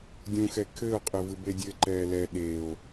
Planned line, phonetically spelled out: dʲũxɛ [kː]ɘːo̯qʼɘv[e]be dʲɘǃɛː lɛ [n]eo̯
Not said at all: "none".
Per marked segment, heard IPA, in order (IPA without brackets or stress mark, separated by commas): kʰ, ɨ, ɗ